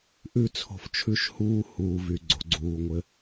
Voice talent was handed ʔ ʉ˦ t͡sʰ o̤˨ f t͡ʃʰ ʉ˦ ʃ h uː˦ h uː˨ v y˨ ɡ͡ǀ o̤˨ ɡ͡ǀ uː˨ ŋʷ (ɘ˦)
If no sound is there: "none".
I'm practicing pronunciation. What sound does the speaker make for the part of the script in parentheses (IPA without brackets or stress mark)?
ɘ˦